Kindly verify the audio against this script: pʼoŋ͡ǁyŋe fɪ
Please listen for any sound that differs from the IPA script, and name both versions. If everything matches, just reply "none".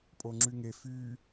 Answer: ɪ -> y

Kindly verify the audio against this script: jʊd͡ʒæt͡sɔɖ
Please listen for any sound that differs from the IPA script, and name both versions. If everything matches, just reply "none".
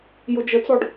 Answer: æ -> ə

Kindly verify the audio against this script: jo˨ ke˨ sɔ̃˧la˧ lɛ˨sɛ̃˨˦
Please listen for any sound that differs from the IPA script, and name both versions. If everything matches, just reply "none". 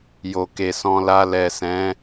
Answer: none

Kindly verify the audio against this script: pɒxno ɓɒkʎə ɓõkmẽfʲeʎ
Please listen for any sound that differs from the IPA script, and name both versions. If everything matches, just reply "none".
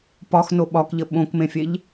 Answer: none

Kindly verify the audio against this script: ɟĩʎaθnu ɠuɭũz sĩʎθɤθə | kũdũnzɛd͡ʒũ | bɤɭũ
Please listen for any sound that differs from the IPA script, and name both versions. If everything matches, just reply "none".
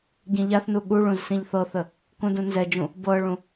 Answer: none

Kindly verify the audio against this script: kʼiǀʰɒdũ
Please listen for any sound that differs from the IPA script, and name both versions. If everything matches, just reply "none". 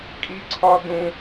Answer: none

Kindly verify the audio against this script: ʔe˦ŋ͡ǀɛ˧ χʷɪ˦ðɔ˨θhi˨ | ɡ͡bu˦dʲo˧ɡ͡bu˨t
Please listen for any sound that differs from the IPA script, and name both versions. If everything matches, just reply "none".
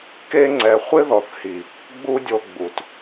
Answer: ʔ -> k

